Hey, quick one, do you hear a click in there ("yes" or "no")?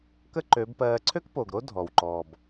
yes